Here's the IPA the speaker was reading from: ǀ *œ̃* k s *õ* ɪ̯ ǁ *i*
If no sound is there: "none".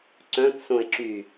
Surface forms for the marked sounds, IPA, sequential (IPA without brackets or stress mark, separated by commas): œ̃, õ, y